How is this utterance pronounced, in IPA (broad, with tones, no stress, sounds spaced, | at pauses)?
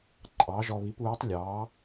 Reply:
ǃʼ ɑ˨˥ ʒ ɔ˧ β i˨˥ p uː˨˥ tˤ lʲ ɑ˨˥